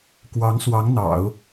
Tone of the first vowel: rising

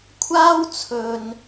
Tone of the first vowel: high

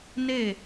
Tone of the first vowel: falling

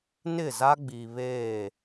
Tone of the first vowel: falling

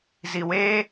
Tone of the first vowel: low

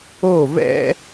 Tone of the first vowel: falling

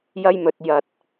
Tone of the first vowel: high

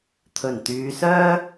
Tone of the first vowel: low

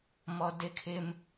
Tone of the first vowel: high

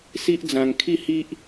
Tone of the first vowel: high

